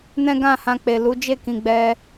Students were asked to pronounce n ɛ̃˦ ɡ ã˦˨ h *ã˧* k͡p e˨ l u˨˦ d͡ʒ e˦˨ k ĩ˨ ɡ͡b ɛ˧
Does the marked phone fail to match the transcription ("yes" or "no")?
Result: no